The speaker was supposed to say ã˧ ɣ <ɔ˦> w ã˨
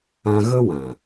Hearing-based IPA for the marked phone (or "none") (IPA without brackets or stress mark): ə˦